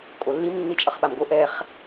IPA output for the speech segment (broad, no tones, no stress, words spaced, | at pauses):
kʼolːim nːit͡ʃʼʌχɓamɡo ʔɛχ